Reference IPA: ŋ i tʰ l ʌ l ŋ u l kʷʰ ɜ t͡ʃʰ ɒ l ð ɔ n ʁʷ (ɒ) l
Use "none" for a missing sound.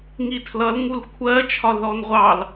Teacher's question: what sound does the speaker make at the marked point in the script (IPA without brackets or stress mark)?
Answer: ɑ